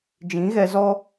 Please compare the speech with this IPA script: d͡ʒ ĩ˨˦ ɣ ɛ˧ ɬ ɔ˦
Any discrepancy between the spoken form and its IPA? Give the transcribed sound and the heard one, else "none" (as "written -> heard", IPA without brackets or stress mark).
ɬ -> z